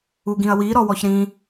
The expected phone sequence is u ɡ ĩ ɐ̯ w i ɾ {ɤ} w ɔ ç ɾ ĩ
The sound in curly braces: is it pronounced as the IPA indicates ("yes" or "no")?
no